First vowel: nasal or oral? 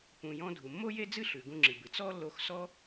nasal